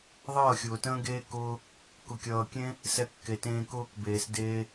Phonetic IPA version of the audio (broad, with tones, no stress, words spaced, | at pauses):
ðˤʌː˦˨xʲʊː˨tə̃ː˦ɡeː˦ kʊː˦ | kʊ˨kʲʌː˨kʲẽ˦ | sɛ˧kːe˨tẽː˧ kʊː˦kbeː˨s deː˦